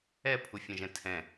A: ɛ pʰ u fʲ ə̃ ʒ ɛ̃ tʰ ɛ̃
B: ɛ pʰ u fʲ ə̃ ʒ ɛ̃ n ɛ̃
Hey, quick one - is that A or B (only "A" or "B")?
A